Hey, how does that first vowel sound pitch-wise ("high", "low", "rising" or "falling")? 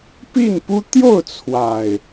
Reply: falling